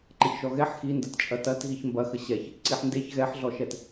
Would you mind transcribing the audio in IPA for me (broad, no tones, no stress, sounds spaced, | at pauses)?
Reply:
ǃ ə ç ʃ ɔ ɣ ɛ ħ x i n d ɐ t t͡ʃʼ ɐ t ɐ t ɣ i ç m b ɐ x ə ɕ ɛ ç | ǀ i ħ n d e ç ɣ ɛ ħ ɮ ɔ ʃ ɛ t